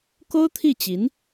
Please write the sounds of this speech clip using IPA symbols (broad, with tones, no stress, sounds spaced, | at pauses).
k o˥ ʊ̯ t̪ʰ i˥˩ t͡ɕ i˧˥ n